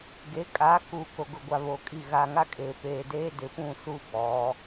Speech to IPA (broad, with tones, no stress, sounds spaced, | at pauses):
ɡ e˨˦ kʼ aː˨˦ k uː˨ k o˨ ɡ ʊ˨ ɡʷ a˨ β oː˨ kʼ i˦˨ ɣ aː˨ ŋ a˦ kʼ eː˨ p eː˨ d eː˦ d ɪ˨ p ũ˦˨ s u˦ b ɔ˨˦